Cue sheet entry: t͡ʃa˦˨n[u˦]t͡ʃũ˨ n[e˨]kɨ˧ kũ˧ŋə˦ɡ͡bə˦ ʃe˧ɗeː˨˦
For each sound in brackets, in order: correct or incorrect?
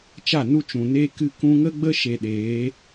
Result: correct, incorrect: e˧

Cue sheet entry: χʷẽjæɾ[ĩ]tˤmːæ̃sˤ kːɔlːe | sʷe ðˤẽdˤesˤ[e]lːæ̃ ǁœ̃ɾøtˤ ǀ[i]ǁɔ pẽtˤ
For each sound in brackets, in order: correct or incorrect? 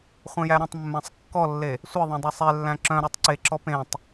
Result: incorrect: ẽ, correct, incorrect: e

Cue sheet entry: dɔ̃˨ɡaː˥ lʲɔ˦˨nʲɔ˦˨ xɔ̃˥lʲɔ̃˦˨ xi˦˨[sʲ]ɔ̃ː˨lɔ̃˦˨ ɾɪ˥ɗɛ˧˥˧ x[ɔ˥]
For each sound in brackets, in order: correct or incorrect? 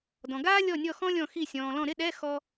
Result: correct, correct

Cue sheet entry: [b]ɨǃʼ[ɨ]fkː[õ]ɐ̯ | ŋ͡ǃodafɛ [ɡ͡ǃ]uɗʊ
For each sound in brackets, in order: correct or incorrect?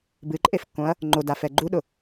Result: correct, incorrect: e, correct, correct

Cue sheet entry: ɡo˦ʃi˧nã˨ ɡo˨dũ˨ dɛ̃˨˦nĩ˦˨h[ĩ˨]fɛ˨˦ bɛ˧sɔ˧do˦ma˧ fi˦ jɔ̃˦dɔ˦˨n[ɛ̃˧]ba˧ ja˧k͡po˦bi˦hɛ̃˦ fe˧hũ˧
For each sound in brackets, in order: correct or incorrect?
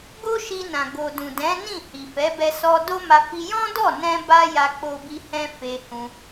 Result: incorrect: i˨, correct

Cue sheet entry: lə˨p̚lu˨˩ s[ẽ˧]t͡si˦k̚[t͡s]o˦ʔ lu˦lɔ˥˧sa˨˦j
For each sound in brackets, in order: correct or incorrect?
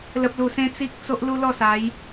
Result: incorrect: ẽ˦, correct

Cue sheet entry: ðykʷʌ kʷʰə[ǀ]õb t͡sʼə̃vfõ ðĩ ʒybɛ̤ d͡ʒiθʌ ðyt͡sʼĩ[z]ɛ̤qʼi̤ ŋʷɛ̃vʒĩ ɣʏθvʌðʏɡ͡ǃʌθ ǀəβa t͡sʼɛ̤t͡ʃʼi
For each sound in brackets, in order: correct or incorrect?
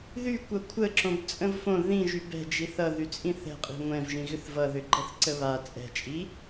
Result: incorrect: ǁ, incorrect: θ

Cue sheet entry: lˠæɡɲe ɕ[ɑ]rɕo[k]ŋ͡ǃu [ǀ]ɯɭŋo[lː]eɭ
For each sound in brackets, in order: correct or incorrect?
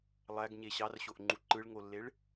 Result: correct, incorrect: ʔ, incorrect: ǃ, correct

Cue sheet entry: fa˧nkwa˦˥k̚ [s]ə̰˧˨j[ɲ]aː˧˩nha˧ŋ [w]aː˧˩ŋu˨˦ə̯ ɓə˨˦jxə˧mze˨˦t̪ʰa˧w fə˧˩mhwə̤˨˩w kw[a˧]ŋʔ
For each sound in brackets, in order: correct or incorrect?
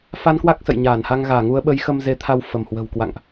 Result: correct, correct, incorrect: ɣ, incorrect: a̰˧˨

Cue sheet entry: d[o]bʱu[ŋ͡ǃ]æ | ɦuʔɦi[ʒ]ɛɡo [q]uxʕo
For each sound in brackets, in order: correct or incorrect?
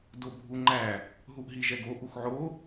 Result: correct, correct, correct, incorrect: ʔ

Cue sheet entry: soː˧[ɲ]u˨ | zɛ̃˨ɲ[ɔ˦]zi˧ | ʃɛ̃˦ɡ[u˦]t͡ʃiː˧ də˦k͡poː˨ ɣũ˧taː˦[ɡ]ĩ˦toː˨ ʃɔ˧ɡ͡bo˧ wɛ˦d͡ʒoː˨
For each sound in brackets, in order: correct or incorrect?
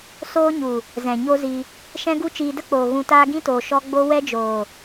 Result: correct, incorrect: o˦, correct, correct

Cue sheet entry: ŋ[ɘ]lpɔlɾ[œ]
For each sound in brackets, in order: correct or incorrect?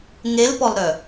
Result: incorrect: e, correct

